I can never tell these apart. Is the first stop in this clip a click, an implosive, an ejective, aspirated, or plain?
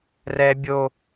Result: plain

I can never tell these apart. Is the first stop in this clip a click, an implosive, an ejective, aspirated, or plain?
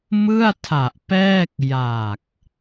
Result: aspirated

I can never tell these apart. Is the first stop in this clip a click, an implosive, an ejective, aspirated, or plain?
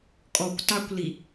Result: ejective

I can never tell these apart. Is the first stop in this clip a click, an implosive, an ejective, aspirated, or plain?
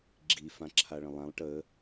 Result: click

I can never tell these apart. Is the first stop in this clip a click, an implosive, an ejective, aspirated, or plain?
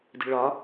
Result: plain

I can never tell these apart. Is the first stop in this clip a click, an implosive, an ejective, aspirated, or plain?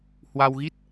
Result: plain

